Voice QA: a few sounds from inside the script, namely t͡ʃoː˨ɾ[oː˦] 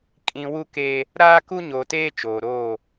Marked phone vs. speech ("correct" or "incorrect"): incorrect